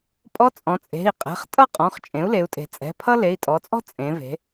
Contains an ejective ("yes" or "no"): yes